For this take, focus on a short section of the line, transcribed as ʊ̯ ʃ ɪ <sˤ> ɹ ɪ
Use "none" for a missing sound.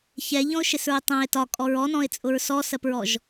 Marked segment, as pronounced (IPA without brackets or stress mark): s